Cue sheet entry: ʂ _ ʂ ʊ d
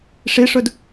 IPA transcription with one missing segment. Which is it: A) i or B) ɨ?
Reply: A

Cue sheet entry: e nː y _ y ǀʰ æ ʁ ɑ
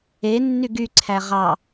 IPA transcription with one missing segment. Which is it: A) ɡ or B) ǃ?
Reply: A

